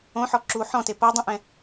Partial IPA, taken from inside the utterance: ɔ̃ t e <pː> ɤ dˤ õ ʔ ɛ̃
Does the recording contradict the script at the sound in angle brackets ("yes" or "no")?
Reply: yes